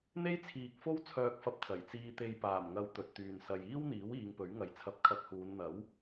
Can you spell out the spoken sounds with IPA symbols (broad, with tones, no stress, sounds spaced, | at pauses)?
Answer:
n̪ e˥ j t͡sʰ iː˨ k̚ f o˥ w t͡sʰ œː˨ k̚ f ɐ˨ p̚ t͡s ɐ˨˩ j t͡s iː˧ t̪ e˧ j p aː˨˩ m ŋ ɐ˨˧ w t̪ ɵ˨ t̚ t̪ yː˨ n s ɐ˨ j iː˥ w n̪ iː˨˥ w iː˨˧ ŋ p ɵ˨˥ ɥ ŋ ɐ˨ j t͡sʰ ɐ˧ p̚ kʰ ɐ˧ k̚ h uː˨˧ n n̪ ɐ˨˥ w